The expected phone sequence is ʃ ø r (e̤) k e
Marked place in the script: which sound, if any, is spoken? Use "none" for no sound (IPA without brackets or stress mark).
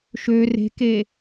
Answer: e̤